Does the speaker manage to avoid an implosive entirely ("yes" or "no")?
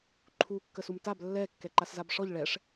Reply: yes